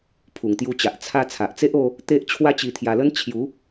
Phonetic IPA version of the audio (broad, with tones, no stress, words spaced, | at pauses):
pʰu˨˩ŋt̪ju˧t͡ɕa˨ʔ t͡sʰa˧ t͡sʰa˨ʔt͡se˦ʔo˧ | t̪e˦ʔ t͡ɕʰwa˦t͡ɕi˧t̪ʰja˧lə˦n t͡ɕʰju˨˦